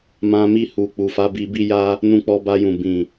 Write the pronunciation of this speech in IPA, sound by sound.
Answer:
m ã˧ m i˧ h u˨ k͡p u˨ f a˨˦ b i˧ b i˦ j a˦ | n ũ˧ k͡p ɔ˧ b a˧ j ũ˨ b ĩ˨

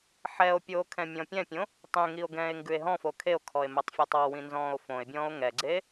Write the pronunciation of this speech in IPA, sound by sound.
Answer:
ħ ɛ o̯ pʲ oː kʰ ɛ̃ mʲ ɔ̃ pʲ ɛ̃ pʲ õ | tˤ ẽ ŋ i o̯ ɡ ɛ̃ː e̯ ŋ ɡ ʉ e̯ ɦ ɔ̃ f o kʰ e o̯ kʰ ɔ e̯ m ɛ tˤ fʲ ɔ tˤ ɔ w ĩ n z ɔ̃ː o̯ f õ e̯ bʲ ɔ̃ː o̯ ŋ ɛ ɡ͡ǀ eː

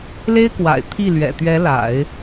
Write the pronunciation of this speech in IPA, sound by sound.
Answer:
l e˥ ɪ̯ k w a̰˨˩ ɪ̯ t̪ʰ i˥˩ l ɥ ɛ̰˨˩ t̪ ɥ ɛ˧˥ l a̰˨˩˦ ɪ̯

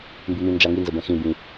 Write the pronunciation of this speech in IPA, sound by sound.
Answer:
m b ɨ m ĩ n d͡ʒ a ŋ i n z ə b ɛ̃ x ĩ b ĩ

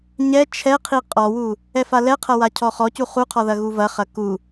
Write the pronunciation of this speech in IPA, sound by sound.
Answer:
ɲ ɛ t͡ʃʰ ɛ qʰ i qʼ ɔ w u | ɛ f a l ɛ qʰ ɐ w a cʰ ɔ χ ɔ c u χ u qʰ ɔ ð ɐ ɣ u v ɐ χ ɐ k u

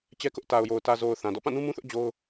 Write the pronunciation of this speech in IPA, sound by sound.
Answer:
t͡ɕ ɛ˦ k ʊ˦ ʔ t a˨ ʊ̯ j o˨ ʊ̯ t ä˨ z o˨ ʊ̯ θ ã˨ d ɔ̰˦˨ p ã˦˨ n ũ˦ m ũ˦ θ ʊ˦ ʔ d͡ʑ o˦ ʊ̯

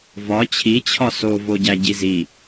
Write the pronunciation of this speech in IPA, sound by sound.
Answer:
v ɒ t͡ɕʰ i t͡ɕʰ ɒ s o v o ɟ æ ɟ i z i

